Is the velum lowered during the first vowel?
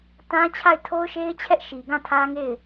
yes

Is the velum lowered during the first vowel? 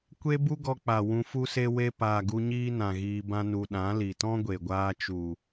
no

